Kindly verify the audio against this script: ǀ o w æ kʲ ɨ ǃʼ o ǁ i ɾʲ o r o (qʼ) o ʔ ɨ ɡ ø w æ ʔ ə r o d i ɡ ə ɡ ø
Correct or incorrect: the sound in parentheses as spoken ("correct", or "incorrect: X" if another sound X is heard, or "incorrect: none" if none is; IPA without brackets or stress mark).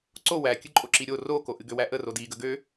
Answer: incorrect: k